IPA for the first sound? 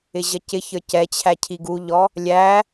ɪ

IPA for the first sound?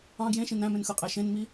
ɑ̃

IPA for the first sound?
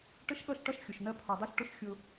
ʈ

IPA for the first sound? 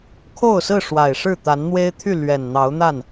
kʰ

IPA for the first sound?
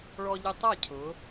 ɭ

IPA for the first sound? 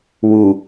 w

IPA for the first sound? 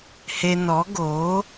h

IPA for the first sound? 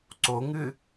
ǀ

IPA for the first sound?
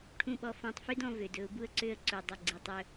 ʈʰ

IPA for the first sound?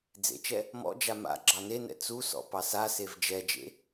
d͡z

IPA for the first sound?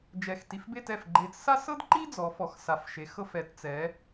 d͡ʒ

